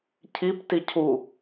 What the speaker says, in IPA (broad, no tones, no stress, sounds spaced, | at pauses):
cʰ i p t i cʰ u